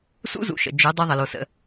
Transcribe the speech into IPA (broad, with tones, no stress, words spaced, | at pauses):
sṵ˦zṵ˨ʃə̰˨ d͡ʒɵ˨˦ dˤø˦ðˤə˨lo˨sə̰˨